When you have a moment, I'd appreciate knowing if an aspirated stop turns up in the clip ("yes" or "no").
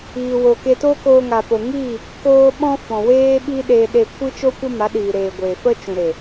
no